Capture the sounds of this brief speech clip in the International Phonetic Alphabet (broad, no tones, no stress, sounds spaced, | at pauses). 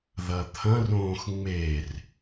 ð ɐ t̪ʰ ɐ̃ r õː x ŋ͡m e r